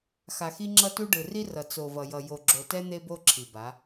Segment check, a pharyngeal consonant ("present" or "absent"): absent